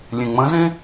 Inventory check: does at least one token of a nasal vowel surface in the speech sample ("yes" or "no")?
yes